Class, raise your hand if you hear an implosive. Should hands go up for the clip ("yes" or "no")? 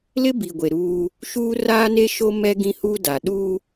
yes